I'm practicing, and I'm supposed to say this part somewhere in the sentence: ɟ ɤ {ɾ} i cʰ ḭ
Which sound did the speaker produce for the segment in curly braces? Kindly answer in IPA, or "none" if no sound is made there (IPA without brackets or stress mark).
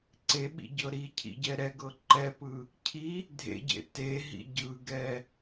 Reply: ɾ